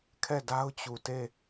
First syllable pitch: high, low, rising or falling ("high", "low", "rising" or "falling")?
falling